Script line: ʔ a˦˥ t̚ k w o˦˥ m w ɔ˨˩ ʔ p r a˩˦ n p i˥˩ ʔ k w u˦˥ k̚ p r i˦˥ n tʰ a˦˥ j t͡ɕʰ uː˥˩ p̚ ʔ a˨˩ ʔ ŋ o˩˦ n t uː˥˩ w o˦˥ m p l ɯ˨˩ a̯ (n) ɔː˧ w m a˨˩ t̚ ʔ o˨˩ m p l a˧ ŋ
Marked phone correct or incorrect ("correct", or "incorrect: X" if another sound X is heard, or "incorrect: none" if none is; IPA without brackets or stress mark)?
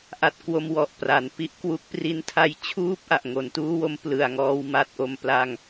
incorrect: ŋ